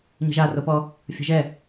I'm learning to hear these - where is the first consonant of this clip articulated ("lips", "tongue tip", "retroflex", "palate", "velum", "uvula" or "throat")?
palate